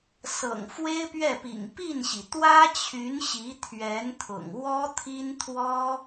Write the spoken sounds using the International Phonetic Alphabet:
sɤ̰˨˩ŋfwe˥ɪ̯pɥɛ˥˩pḭ˨˩ŋ pi˥˩nɕi˩ t̪wä˥t͡ɕʰy˧˥n ɕi˧˥t̪ʰɥɛ˧˥nt̪ʰʊ̰˨˩ŋ wɔ˥t̪ʰi˥nt̪ʰwɔ˥

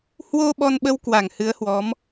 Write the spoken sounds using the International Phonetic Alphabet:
hwo˧ ɓɔ˧nɓə˧w kwa˧˩ŋhɨ˨˦ə̯hwɔ˨˦m

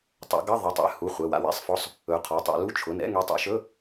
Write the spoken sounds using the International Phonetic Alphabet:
tˤɛ̰˨˦ɡʌ˧˥˧ ðˤʌ˩˧˩tˤɛ̰˨˦ hu˩˧˩ χʷɛ˩˧˩wa̰˨˦w ɛ̰˧˥˧sˤfɔ˧˥˧sˤ | ɵ˨˦qʰɔ˩˧˩tˤa̰˨˦ lu˧˥˧t͡ʃʰʊ˩˧˩n ɛ̰˧˥˧ŋe˨˦tˤɛ̰˨˦ʃɵ˧˥˧

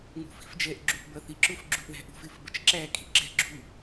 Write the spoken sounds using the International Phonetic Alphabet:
ŋṳfi̤fd͡ʒɛʔ ɡ͡ǁuʔbʌθiǁʊf ɡ͡ǁuʔðæ̤ʔṳf ɪfbət͡ʃǁæ kʼi̤ɡ͡ǁɛ̤ ɡ͡ǁu

